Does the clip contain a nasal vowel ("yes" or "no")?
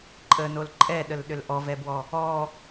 no